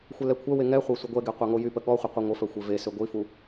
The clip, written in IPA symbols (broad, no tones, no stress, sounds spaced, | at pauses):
xʷ ɛ l ɛ kʷʰ œ w e ŋ ɛ χʷ œ sʷ ə ɡʷ ɛ ɡ e qʷ a ŋ o j y p ə ɠ ɔ χʷ ə qʷ i ŋʷ ə f œ xʷ e v e s ø ɡʷ i f u